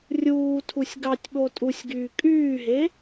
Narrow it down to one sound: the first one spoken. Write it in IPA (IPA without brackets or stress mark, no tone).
rʲ